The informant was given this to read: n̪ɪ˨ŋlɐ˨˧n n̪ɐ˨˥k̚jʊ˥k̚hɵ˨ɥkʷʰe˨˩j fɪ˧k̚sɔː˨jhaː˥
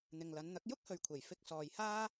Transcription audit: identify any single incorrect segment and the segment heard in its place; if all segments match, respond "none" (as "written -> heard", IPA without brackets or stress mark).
none